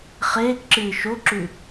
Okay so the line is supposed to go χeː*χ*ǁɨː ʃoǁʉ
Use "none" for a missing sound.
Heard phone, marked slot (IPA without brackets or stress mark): k